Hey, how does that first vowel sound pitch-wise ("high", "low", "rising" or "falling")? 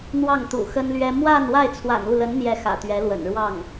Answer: falling